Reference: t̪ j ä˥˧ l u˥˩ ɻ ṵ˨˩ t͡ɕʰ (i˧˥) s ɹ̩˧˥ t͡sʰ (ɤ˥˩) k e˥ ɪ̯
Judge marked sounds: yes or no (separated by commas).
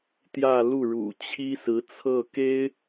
no, yes